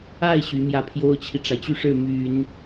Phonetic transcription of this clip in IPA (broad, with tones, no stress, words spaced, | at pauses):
a˥˩ɪ̯ ɕy˧˥mjä˥˩ pʰjo˥ʊ̯t͡ɕʰi˨ʈ͡ʂa˩ɪ̯t͡ɕy˥˧ ʂɻ̩˥˩my˨˩˦n